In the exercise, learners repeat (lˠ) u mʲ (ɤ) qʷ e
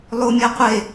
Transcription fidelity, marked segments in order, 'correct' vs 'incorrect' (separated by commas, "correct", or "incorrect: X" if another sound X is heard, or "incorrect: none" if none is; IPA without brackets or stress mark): correct, correct